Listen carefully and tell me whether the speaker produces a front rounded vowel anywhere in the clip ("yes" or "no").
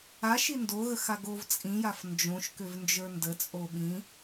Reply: yes